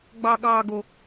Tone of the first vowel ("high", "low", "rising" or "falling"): low